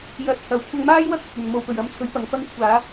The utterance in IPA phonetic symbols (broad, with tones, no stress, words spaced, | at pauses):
jɐ˨t̚ hɐ˨˩wkʷʰɐ˧ŋmaː˥jwɐ˥k̚ ɐ˨t̚ɵ˨n mo˨wpɵ˨˩ɥ ɐ˧mt͡sʰɵ˨˥ɥ pɐ˨˧ŋfɐ˥ŋ kʷʰaː˨˧